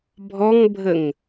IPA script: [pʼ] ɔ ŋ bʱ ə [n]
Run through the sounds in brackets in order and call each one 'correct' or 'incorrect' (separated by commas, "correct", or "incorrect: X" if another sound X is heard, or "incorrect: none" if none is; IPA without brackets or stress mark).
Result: incorrect: bʱ, incorrect: ŋ